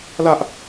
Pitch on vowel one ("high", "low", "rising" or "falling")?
high